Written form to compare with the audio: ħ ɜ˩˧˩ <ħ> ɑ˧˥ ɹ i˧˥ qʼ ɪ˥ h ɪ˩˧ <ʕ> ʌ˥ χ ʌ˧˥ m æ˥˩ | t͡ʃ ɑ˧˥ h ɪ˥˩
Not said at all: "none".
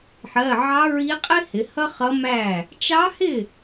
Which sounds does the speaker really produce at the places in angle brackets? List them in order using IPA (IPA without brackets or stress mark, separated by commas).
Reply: ʕ, h